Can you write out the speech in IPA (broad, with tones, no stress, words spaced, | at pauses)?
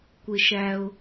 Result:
kʷɪ˩ʃæ˩ʊ̯